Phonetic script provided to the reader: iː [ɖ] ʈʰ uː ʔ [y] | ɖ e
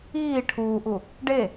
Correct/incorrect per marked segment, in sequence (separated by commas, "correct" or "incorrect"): incorrect, incorrect